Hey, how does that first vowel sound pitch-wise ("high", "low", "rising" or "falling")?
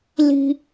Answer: high